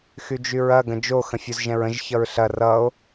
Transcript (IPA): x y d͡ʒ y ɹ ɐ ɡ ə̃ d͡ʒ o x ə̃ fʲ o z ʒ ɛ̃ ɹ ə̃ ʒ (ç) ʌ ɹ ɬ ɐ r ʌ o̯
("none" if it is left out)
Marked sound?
ç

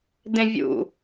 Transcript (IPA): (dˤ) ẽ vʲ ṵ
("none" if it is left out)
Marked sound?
d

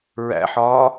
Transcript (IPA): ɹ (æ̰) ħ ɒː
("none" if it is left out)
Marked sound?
æ̰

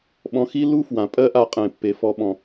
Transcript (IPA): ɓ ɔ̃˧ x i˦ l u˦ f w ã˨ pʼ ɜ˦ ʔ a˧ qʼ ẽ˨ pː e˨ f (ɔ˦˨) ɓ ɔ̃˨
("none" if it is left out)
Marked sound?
ɔ˨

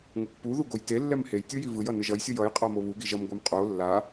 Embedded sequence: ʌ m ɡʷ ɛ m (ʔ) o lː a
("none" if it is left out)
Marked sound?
qʼ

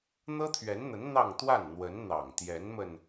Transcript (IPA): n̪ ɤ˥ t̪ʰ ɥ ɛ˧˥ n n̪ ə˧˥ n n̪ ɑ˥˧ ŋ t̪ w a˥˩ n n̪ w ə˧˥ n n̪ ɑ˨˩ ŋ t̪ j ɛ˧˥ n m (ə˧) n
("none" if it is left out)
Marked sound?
ə˧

